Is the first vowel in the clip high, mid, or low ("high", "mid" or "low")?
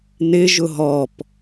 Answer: high